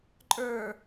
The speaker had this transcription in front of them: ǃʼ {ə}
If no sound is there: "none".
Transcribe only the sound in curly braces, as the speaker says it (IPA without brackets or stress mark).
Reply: ə˞